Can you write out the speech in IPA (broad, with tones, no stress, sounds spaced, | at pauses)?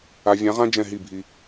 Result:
a˨ vʲ ã˨˦ ʁ ã˦ d͡ʒ ɛ̃˦˨ ɦ i˦˨ bʱ i˧